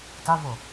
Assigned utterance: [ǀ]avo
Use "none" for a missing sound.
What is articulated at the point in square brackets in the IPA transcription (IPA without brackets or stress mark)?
t